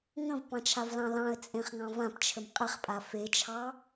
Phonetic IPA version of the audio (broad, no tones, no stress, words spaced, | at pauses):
ŋə̃vpɑ̃t͡ʃʰavlɑ̃ lɑ̃ə̯t͡sʼẽχŋɑ̃ vãpt͡ʃʰəm qʼɪχpʼa fet͡ʃʰɑ